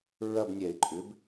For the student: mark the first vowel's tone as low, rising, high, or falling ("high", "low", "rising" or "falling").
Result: falling